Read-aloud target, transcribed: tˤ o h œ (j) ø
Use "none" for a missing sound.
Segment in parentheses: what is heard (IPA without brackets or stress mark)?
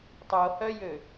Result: j